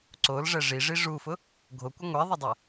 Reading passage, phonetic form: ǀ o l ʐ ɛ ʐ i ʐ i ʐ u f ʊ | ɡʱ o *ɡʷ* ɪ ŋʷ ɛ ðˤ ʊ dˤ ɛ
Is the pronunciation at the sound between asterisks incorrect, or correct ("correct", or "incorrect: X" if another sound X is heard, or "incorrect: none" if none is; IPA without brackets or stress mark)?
incorrect: kʷ